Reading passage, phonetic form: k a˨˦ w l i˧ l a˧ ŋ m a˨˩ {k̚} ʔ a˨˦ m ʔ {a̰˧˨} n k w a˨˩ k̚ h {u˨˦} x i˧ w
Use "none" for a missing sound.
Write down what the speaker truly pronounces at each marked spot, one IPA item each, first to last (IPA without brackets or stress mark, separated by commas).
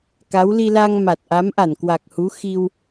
t̚, a˧˩, u˨˦